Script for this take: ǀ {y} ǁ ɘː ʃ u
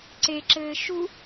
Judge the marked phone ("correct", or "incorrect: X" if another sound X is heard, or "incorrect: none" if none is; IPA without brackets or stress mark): incorrect: e